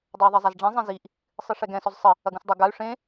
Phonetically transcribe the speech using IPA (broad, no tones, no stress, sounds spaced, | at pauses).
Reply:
dˤ o u̯ ðˤ e zˤ a z ɖ͡ʐ ẽ zˤ ẽ z i ʔ | sˤ ɨ ʂ ɛ ɡ ɛ̃ s ɔ z sˤ ɘ | ɐ ɡ ũ s dˤ ɐ ɡ a y̯ ʂ ẽ